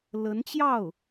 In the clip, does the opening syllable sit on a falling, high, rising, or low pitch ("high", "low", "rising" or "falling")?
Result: rising